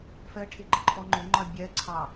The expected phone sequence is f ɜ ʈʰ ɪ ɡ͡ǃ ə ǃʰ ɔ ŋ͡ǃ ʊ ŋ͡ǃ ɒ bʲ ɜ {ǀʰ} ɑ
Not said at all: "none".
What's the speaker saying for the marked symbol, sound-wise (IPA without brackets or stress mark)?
ǀʰ